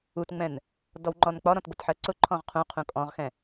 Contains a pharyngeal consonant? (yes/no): yes